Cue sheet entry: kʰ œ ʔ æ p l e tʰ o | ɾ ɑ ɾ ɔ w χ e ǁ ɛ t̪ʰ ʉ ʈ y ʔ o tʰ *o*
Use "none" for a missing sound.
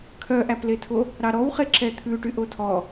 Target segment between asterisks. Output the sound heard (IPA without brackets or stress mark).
ɔ